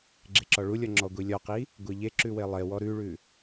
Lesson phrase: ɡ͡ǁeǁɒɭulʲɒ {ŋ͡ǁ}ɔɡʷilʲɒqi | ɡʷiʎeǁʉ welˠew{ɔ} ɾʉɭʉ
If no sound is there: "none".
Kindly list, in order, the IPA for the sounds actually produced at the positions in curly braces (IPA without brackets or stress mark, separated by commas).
ŋ͡ǁ, ɔ